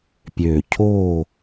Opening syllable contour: low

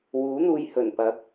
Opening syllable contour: rising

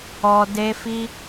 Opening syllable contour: high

